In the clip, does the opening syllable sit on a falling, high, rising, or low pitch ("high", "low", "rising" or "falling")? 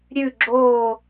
falling